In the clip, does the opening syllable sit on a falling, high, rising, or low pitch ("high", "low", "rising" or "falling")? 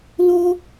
high